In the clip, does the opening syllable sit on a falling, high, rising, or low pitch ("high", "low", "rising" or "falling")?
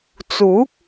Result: rising